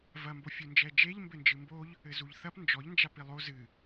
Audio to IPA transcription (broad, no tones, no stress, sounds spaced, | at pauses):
v ɐ m b o fʲ u n d͡ʒ ɛ d͡ʒ e ʎ m b ɘ n d͡ʒ ɨ m b o ʎ | ɘ z u ʎ θ ɐ p n d͡ʒ ɔ ʎ n d͡ʒ a p i lˠ o z ɨ